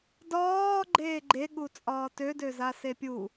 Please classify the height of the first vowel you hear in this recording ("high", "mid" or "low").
low